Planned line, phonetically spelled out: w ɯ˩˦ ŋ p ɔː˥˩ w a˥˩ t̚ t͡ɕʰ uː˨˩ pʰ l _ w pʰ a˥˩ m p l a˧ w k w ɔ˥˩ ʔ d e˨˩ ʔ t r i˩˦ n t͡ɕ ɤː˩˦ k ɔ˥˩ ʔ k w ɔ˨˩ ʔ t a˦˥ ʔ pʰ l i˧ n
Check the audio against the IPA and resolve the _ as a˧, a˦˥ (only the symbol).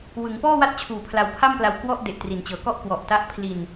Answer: a˧